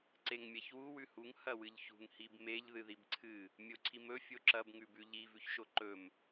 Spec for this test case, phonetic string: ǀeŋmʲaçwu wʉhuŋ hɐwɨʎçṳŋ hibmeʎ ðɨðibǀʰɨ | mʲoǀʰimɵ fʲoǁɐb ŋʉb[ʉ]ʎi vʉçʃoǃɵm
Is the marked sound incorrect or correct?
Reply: correct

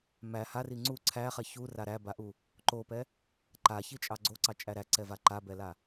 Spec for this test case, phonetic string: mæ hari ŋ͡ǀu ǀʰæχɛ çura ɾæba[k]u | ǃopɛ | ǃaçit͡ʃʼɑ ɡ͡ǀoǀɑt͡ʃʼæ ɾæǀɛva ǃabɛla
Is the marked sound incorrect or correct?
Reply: incorrect: ʔ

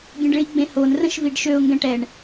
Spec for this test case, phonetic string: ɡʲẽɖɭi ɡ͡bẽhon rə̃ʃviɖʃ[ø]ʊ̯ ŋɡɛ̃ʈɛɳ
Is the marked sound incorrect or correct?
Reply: correct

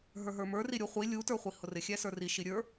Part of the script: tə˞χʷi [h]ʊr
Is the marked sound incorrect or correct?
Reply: correct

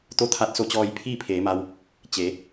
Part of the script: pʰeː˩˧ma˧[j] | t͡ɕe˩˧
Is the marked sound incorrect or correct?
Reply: incorrect: w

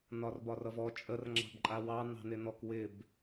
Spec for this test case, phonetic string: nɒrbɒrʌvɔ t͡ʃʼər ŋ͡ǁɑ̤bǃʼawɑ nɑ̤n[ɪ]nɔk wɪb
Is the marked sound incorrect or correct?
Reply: correct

